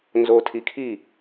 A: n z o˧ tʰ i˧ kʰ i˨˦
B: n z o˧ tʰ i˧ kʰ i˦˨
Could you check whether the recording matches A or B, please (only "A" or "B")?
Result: B